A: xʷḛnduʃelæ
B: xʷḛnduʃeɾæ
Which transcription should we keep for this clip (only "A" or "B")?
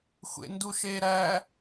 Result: B